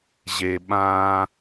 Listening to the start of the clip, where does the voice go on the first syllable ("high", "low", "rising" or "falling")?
low